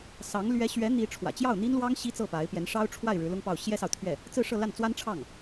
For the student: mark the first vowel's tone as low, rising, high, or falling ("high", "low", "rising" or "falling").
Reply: rising